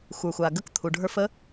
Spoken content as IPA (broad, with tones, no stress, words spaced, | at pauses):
xʷə˞˨xʷa˨ɡə˦k t̪ʰu˨ɖʱə˞˦f ə˦